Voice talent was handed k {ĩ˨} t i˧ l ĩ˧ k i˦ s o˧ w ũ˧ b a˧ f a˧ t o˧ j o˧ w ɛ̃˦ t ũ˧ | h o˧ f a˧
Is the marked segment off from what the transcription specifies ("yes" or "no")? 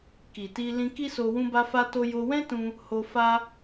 yes